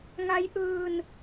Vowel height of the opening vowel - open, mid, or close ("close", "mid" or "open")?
open